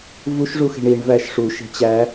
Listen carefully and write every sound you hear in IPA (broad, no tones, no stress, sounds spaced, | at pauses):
v u ʃ ʐ u x e̤ ɳ i ɳ v æ ʃ ʂ u ʃ e̤ t͡ɕ æ